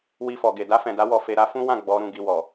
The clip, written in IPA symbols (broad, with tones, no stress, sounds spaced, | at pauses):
w i˧ f ɔ˨ ɡ e˨ d a˧ f ɛ̃˨ d a˨˦ w ɔ˧ f e˧ ɾ a˧ f ũ˦ w ã˦˨ ɡ͡b ɔ˨˦ ɾ ũ˦˨ ɡ i˧ w ɔ˨